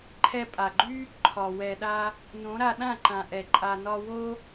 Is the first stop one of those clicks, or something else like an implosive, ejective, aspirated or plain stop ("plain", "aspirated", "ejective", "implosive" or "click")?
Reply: click